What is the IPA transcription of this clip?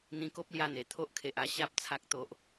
n̪ ĩ˧ k o˦ p̚ l j a˧ n̪ e˨˩ t̪ʰ o˦ ʔ kʰ e˨ ʔ a˥˧ ɕ a˦ p̚ t͡sʰ a˦ k̚ t̪ o˦ ʔ

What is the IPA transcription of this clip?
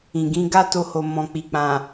ĩ˨ ɡ ĩ˨˦ ɡ a˦ t o˧ h o˨ m ɔ̃˨ k͡p i˨ k͡p ã˨

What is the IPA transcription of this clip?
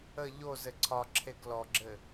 ə ʎ o z ɘ ǀʰ ɒ ǁʰ e ɡ l ɔ ɡ͡ǁ ɘ

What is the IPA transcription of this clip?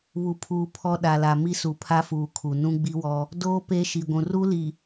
β u˨ pʰ uː˨ pʰ ɔ˦ ɗ a˨ l a˨ m i˦ s u˨ pʰ a˦ f uː˨ kʰ u˨ n ũ˦ ɡ͡b i˦ w ɔ˦ | d oː˦ p e˦ ʃ i˨ ɡʷ ũ˨ r u˦ l i˨

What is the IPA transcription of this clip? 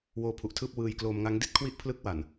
w oː˧ pʰ u˨˩ ʔ tʰ ɯː˥˩ p̚ w ɯː˧ j k l oː˧ m ŋ a˦˥ ŋ d i˥˩ t̚ kʰ w i˥˩ ʔ pʰ l ɯ˦˥ k̚ w a˨˩ n

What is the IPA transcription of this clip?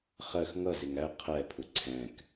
χ ɜ x ŋ ʌ z ɪ ŋ æ qʰ ɛ pʰ ʊ ǀʰ ɛ̃ k

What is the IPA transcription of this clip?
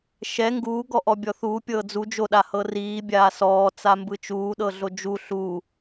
ʃ ɛ ŋ ɡ uː ɡ ɔ ʔ ɔ bʲ ɔ θ uː pʲ ɤː d͡z u d͡ʒ o ɗ a h ɤ r iː bʲ aː s ɔː t͡s a m b ɯ t͡ʃ uː ɗ ɤ ɮ o d͡ʒ u ɬ u

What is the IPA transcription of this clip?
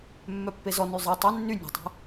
mː œ pː e z ɔ n y zˤ i tˤ e nː y nʲ a̤ tˤ i̤

